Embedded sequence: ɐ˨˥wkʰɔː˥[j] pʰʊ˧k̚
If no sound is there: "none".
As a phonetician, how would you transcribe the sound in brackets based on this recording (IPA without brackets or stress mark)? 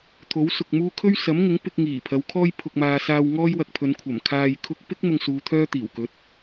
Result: j